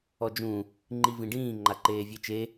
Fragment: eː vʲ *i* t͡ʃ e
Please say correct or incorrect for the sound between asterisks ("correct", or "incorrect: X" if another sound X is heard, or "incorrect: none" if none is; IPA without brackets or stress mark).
incorrect: e